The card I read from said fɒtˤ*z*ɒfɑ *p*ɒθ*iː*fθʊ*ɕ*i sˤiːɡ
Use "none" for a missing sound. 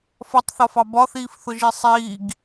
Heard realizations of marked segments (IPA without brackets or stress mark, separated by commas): θ, b, iː, ʒ